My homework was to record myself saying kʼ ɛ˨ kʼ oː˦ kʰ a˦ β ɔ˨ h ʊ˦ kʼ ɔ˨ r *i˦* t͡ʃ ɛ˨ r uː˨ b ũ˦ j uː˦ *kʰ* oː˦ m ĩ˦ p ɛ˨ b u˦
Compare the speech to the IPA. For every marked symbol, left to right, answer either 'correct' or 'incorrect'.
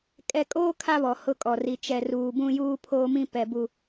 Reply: incorrect: i˨, incorrect: pʰ

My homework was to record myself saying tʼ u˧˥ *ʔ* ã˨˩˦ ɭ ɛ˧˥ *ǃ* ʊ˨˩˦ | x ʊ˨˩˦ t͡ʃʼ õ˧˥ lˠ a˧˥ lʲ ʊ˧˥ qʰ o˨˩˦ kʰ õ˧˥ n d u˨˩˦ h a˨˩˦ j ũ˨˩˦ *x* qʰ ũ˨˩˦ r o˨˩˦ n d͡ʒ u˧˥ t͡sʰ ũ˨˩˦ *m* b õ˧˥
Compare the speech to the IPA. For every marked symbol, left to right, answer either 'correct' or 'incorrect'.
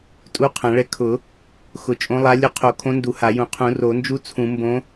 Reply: incorrect: qʰ, incorrect: kʰ, incorrect: none, correct

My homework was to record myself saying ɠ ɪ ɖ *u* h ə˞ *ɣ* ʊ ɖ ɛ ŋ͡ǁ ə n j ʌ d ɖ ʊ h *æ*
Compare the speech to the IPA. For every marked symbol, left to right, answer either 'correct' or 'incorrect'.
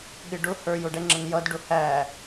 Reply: incorrect: ʊ, incorrect: j, correct

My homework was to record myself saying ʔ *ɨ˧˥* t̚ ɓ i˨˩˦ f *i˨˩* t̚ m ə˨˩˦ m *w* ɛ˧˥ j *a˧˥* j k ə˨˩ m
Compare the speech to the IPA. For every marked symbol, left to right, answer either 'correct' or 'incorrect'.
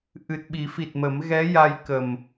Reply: incorrect: ɨ˨˩, correct, incorrect: ɣ, incorrect: a˧

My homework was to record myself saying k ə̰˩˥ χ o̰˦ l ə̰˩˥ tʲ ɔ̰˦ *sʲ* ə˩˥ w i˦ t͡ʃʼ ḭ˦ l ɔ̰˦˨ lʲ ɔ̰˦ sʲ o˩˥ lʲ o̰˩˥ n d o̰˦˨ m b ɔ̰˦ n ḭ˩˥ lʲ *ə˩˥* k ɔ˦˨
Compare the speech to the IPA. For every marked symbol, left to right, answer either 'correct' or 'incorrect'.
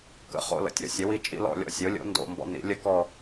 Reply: correct, incorrect: ə˦

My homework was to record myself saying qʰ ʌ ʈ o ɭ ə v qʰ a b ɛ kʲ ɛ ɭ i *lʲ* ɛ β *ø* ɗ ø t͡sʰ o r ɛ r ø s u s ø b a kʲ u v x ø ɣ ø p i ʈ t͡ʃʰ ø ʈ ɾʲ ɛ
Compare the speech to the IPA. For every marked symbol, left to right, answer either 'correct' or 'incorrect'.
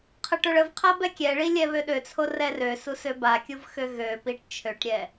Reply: correct, correct

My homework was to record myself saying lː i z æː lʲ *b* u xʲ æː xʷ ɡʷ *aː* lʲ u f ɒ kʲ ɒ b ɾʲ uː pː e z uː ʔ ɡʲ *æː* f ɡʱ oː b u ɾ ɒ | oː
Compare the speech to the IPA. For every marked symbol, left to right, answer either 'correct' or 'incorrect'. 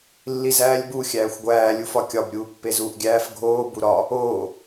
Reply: correct, incorrect: æː, correct

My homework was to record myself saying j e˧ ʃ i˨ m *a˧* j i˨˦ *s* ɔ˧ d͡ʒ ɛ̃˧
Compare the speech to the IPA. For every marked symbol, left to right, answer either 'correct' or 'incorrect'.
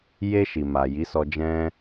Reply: incorrect: a˨, correct

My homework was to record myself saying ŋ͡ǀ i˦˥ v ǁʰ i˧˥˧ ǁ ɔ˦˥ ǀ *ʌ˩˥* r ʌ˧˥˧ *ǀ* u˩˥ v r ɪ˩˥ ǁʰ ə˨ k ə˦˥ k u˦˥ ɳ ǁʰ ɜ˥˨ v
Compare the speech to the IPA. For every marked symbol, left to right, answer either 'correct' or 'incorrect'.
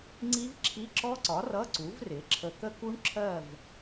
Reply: incorrect: ɒ˩˥, correct

